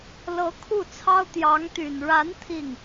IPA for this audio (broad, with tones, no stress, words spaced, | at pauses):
lɤ˧˥ kʰu˥˩t͡sʰɑ˥ʊ̯ t̪jɑ˧˥ŋt̪y˨˩n ɻa˧˥n t̪ʰi˥˩ŋ